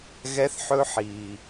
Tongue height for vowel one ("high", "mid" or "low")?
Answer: mid